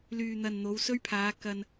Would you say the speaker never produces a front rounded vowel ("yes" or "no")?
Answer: no